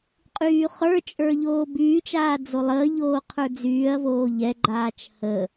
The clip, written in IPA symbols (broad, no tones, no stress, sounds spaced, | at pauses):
qʼ yː χ ə˞ t͡ʃʼ ə˞ ʎ oː b yː t͡ʃ aː d͡z o lˠ əː ʎ oː qʰ ə˞ d͡z yː ɐ̯ v oː ʎ ɛ ɡ͡ǃ aː t͡ʃ h ə